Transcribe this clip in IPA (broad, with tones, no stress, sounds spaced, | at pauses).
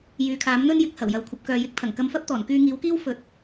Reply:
j yː˨˧ kʰ aː˨˥ m n̪ ɵ˥ n j ɪ˨˥ k̚ h ɐ˨˩ w j ɐ˨ w kʷʰ ɐ˨ p̚ k œː˨ j ɪ˧ k̚ t̪ʰ ɐ˨˩ ŋ k ɐ˧ m f ɐ˥ p̚ t̪ ɔː˨˩ n k yː˧ ŋ iː˨˥ w k iː˥ w f ɵ˨˥ t̚